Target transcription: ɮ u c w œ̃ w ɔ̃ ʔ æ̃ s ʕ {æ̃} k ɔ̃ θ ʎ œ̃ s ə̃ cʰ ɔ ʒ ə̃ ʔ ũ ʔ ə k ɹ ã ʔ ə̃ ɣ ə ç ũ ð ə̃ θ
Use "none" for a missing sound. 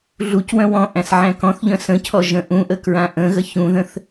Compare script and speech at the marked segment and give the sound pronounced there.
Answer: æ̃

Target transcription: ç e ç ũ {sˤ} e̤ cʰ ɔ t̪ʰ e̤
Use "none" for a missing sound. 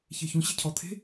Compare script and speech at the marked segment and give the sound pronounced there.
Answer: ɕ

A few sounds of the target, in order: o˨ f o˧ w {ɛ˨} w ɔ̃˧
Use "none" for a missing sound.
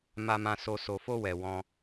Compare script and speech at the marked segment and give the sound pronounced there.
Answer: ɛ˨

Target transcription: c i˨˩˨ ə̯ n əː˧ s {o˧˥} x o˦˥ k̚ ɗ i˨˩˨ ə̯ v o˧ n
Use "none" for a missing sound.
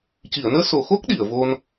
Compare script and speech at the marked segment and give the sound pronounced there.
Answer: o˨˩˨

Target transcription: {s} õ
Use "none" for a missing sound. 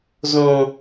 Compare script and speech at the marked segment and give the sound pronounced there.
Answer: z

